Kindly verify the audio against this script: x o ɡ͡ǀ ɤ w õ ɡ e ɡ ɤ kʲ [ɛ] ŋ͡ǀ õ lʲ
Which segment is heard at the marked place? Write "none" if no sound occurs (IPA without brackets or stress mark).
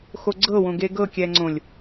ɛ